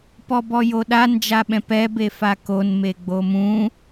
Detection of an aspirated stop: absent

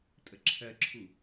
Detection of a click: present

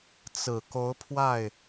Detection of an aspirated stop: present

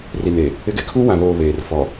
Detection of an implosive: absent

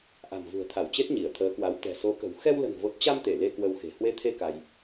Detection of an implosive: absent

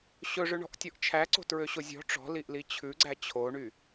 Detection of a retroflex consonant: present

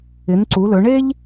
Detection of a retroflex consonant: present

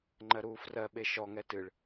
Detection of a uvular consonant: absent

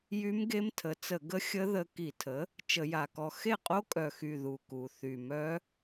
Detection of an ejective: present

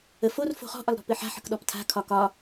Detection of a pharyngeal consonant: present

